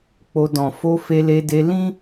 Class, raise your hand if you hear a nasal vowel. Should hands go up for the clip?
yes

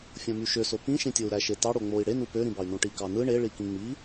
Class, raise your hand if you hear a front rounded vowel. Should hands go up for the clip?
yes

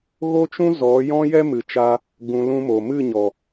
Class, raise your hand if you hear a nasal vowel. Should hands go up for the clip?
yes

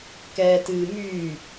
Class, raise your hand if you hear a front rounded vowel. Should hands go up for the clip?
yes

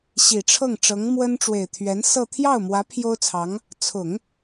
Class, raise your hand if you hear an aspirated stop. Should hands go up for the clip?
yes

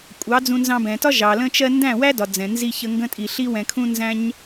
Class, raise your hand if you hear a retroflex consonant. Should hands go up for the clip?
no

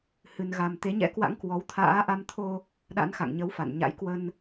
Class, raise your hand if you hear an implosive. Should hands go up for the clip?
yes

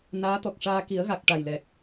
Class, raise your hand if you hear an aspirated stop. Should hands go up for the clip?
no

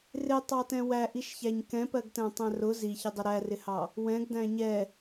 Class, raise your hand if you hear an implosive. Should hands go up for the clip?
no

